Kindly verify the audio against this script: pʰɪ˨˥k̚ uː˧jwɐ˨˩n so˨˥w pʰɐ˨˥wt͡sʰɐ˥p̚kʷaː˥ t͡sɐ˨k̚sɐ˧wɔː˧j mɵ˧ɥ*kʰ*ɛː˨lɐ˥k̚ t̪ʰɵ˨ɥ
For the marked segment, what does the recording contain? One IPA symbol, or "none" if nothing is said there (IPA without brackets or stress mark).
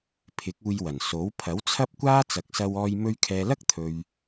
kʰ